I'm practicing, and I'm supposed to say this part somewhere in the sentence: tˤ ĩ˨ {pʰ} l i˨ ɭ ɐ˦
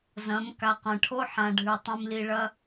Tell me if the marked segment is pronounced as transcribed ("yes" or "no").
no